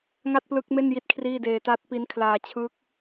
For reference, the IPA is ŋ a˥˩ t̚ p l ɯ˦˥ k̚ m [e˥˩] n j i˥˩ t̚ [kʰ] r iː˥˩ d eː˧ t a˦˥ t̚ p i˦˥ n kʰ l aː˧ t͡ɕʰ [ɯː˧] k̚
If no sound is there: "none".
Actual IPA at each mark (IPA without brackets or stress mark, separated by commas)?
e˥˩, kʰ, ɯː˦˥